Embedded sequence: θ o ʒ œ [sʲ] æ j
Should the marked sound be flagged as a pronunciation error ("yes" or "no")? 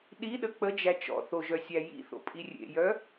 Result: no